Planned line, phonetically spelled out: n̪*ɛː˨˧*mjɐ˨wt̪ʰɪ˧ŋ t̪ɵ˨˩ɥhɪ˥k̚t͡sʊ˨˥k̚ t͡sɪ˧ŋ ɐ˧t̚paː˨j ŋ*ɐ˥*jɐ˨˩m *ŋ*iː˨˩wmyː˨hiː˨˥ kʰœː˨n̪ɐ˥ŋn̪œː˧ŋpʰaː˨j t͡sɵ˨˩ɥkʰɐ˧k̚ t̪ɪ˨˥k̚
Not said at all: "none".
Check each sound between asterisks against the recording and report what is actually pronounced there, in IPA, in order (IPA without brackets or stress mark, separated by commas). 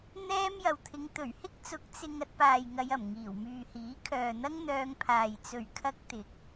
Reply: ɛː˥, ɐ˧, ŋ